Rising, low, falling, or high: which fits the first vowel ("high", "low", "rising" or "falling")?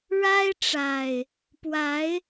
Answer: high